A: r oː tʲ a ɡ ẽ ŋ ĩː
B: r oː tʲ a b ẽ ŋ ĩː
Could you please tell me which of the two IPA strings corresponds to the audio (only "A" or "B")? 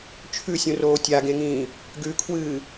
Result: A